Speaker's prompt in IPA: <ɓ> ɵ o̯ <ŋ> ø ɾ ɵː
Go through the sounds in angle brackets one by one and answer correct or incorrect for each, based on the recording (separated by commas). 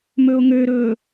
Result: incorrect, correct